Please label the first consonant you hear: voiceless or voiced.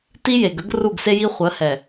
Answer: voiceless